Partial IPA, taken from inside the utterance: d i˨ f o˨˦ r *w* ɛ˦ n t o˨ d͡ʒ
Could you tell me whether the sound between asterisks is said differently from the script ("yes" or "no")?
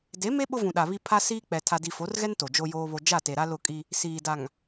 yes